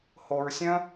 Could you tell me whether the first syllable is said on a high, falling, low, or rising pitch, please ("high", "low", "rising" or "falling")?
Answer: low